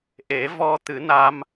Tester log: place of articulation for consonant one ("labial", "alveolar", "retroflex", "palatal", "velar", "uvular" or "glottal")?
glottal